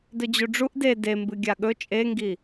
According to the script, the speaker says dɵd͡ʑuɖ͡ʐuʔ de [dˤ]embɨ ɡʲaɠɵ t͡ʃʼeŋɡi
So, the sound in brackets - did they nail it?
no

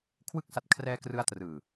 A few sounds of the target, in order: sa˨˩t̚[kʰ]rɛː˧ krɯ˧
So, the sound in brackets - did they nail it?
yes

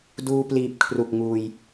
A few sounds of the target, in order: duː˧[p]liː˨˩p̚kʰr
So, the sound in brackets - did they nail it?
yes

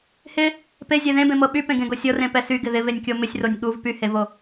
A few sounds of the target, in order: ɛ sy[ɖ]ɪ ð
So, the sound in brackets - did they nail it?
no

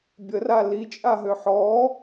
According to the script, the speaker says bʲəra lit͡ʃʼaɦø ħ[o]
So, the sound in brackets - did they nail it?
no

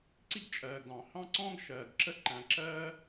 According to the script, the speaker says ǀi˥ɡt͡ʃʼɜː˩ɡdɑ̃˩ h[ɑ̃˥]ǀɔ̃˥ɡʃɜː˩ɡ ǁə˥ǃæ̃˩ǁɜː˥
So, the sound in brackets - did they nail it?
yes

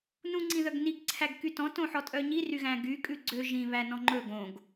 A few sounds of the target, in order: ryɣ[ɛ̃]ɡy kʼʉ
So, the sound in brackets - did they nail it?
no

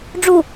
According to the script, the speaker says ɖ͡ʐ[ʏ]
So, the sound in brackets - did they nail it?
no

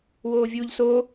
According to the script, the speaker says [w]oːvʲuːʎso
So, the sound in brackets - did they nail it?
yes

